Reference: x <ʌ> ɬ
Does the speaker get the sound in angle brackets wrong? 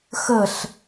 yes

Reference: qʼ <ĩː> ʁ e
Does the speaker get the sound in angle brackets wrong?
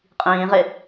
no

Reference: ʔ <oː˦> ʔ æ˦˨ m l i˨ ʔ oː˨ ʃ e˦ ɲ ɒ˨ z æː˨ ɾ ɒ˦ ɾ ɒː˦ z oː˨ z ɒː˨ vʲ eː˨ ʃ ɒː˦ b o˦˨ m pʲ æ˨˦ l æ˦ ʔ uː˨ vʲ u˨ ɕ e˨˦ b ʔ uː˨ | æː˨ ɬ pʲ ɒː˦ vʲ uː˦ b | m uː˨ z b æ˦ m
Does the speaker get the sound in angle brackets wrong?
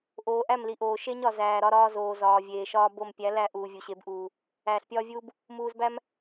yes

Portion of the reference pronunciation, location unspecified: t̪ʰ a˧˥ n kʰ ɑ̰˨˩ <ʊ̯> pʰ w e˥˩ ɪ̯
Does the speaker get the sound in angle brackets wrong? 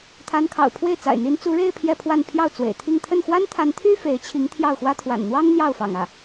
no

